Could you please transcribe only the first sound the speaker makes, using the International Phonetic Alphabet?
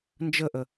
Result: n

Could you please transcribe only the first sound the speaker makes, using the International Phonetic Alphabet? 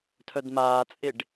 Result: tʰ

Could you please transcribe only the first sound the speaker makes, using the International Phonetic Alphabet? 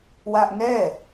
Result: w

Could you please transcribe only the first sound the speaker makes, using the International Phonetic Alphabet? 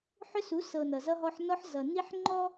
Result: ħ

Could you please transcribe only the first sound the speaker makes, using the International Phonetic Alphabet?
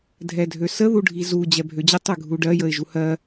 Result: dʱ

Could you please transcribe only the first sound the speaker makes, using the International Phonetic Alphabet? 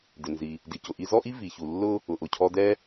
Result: d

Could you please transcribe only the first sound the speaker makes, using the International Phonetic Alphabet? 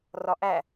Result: r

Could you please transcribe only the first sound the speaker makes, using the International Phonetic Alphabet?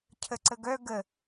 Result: cʰ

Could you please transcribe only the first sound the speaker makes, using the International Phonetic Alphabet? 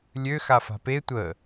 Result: lʲ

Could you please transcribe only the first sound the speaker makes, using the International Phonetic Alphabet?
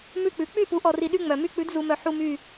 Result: m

